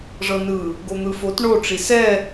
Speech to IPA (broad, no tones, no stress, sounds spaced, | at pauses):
ʐ ɤ n ɯ | ɡ o n̪ ɯ f o t ɳ o ʈ͡ʂ i s ɛ